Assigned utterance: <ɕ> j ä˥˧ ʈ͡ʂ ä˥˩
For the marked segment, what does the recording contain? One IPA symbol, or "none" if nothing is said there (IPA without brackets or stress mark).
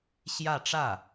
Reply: ɕ